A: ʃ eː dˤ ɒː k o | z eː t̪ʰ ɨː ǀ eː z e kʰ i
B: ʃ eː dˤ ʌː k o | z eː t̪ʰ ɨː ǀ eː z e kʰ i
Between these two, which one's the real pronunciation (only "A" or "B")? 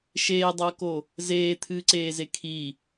B